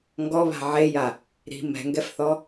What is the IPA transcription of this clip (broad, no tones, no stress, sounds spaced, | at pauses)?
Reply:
ŋ ɡ ɔ β a̤ ʕ e j a | ɾ i̤ m ɛ̤ ŋ ɡ ɛ f θ ɔ